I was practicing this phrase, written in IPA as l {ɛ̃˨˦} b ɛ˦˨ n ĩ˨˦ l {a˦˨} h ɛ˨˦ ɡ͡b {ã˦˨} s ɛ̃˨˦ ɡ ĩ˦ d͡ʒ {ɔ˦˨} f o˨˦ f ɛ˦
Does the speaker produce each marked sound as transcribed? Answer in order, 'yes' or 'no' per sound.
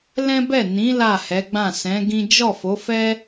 no, yes, yes, yes

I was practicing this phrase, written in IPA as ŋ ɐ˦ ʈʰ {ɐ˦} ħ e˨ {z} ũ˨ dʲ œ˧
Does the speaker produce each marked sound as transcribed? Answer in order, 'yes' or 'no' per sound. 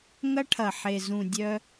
no, yes

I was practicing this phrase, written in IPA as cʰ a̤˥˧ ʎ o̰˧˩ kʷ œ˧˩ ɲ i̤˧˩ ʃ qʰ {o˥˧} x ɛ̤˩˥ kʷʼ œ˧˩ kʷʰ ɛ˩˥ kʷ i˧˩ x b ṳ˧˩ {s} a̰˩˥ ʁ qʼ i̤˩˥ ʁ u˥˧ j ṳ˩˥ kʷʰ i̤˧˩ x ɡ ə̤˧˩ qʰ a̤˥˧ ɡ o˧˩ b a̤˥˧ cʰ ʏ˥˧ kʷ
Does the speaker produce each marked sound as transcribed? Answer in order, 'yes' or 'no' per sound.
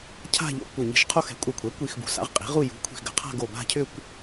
yes, yes

